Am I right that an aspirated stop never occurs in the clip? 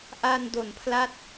no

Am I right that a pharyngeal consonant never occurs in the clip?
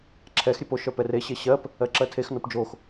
yes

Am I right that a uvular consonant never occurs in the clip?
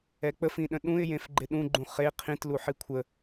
no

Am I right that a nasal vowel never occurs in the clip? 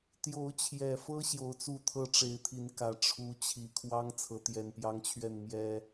yes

